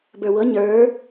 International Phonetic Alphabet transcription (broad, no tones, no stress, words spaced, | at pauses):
bə˞wɤ ɲə˞